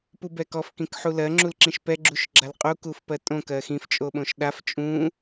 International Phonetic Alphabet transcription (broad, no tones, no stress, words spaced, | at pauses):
pubɛkɔf kĩkħulɜ ŋ͡ǁulǁĩʃpɛ ɡ͡ǁuʃɡ͡ǁalqʼu kufpɜtʼõ kɜxĩf t͡ʃʼoɓõʃɗaf t͡ʃʼũ